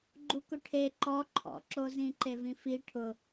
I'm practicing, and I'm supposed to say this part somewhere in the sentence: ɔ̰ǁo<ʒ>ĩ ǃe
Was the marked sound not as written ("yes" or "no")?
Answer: yes